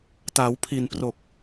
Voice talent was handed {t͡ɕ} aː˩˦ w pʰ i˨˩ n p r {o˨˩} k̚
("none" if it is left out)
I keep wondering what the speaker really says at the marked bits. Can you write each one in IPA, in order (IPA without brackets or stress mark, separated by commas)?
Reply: t, o˨˩